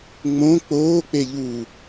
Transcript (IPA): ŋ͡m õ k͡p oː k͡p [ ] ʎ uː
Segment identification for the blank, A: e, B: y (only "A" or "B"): A